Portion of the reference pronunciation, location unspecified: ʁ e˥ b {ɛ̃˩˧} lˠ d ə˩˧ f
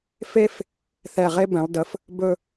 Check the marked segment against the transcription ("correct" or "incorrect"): correct